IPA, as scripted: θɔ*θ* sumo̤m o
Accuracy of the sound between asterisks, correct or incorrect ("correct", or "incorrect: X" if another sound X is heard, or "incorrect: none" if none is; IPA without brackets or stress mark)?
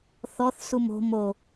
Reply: correct